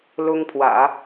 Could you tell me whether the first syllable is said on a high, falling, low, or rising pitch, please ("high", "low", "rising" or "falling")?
high